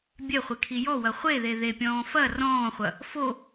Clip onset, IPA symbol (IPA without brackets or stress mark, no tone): bʲ